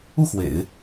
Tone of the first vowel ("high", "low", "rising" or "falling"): falling